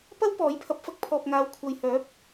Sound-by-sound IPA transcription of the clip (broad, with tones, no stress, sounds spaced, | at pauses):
p ɐ˥ w p ɔː˨˥ j pʰ ɐ˨˥ p̚ f ɐ˧ k̚ pʰ ɔː˨ p̚ ŋ aː˨˧ w kʷʰ ɐ˨ j h œː˨˥ p̚